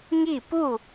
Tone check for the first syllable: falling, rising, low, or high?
falling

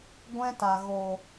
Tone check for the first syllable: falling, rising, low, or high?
high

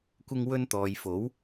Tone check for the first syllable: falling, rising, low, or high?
high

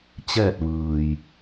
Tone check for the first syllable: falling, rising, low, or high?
falling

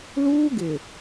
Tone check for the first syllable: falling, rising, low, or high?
high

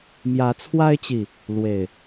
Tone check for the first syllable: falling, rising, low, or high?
rising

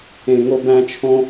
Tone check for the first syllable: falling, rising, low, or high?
high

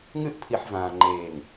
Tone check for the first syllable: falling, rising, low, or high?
falling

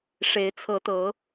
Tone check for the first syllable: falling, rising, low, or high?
rising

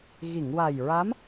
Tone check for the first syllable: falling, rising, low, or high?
low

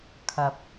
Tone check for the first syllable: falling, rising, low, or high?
rising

